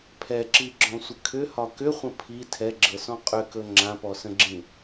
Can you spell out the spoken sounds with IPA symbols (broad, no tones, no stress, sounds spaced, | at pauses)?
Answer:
pʰ ɛ ǁ i ɡ͡ǁ ɔ̃ sʷ ə kʰ ʏ h ɒ k ʏ χʷ ə̃ pʰ i tʰ ɛ ɡ͡ǁ ɤ s ɔ̃ qʼ ʏ k ɵ ŋ͡ǁ ã p ɔ s ə̃ ɡ͡ǁ ĩ